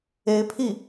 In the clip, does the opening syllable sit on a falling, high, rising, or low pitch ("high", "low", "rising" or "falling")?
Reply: rising